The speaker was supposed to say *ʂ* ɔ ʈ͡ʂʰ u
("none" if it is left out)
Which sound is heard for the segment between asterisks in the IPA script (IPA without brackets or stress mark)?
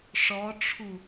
ʂ